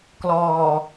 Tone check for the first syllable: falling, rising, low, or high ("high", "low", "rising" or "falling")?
low